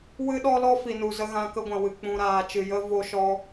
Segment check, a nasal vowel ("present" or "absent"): present